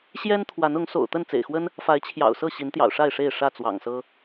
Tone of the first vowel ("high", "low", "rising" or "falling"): high